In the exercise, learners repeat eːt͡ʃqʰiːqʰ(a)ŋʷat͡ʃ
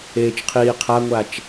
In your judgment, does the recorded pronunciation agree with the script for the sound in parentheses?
yes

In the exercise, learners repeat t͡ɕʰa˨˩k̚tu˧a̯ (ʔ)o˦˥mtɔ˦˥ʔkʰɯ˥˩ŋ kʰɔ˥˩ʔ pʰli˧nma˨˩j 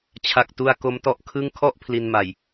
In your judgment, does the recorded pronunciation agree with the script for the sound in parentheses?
no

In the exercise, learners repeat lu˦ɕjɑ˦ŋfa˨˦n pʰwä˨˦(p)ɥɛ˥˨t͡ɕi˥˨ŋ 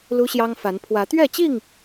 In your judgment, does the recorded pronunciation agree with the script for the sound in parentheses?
no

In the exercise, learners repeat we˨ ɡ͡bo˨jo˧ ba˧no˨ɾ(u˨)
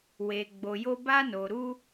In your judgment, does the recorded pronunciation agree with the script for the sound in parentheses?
no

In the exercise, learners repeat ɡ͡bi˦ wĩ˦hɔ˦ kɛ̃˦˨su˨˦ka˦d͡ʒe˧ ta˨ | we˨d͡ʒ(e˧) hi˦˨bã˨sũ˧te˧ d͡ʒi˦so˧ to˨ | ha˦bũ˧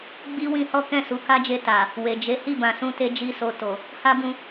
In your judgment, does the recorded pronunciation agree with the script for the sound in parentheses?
no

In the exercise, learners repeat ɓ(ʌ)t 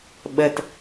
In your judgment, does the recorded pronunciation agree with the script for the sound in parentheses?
no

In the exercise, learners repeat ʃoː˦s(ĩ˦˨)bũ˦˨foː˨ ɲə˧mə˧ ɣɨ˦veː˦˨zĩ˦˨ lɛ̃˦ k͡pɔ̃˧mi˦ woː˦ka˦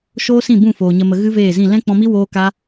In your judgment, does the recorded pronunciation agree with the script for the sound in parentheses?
yes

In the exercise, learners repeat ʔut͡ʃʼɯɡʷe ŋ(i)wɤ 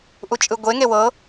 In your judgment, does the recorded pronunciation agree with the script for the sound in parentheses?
no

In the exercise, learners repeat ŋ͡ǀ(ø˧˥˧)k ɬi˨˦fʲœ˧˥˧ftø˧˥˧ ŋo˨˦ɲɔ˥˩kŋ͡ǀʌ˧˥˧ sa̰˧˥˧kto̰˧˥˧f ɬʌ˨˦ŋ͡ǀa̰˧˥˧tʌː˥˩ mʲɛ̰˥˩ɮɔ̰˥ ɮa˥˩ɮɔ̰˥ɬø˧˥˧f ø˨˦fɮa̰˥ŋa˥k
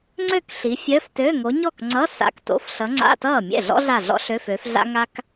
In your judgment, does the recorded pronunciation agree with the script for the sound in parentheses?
no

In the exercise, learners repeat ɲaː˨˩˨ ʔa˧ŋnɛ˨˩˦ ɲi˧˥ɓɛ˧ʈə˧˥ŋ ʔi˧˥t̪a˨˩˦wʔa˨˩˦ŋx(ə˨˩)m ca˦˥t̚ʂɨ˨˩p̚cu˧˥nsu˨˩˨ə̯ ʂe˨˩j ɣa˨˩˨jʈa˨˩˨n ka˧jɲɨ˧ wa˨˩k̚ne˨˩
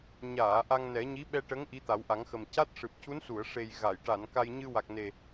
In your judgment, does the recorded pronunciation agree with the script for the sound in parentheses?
yes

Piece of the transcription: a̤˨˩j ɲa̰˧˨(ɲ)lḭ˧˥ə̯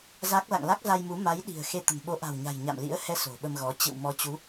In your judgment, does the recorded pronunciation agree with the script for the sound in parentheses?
no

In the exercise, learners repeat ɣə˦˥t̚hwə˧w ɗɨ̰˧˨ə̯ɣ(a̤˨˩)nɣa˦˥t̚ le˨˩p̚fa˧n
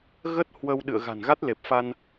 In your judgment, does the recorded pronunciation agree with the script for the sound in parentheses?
yes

